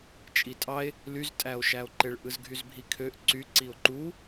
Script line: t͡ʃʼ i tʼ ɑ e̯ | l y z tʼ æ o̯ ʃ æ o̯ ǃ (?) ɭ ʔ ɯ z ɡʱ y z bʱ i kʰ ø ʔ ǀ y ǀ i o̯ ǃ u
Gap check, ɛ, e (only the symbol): e